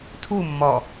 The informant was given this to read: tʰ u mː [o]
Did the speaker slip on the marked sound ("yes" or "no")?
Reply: yes